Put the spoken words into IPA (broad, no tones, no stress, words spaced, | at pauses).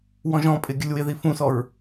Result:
wɔ̃ʒɔ̃pʼɪ ɡʲəlʲwɪði fũsɔɹ